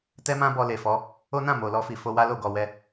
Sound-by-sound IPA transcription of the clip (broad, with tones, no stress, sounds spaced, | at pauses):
t ɛ˦ m ã˦ b ɔ˧ l e˨ f ɔ˨˦ | o˦ n ã˦˨ m o˨ l ɔ˧ f i˨ f o˧ w a˦ l o˦˨ ɡ ɔ˨ w ɛ˧